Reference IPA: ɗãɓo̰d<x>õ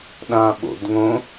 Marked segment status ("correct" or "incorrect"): incorrect